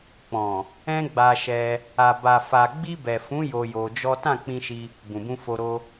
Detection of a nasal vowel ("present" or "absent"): present